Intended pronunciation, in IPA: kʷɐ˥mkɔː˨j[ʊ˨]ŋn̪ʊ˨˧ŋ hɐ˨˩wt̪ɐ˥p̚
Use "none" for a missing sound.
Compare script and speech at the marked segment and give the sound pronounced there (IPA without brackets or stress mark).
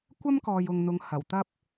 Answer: ʊ˨